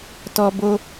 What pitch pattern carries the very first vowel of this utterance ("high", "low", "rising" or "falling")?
high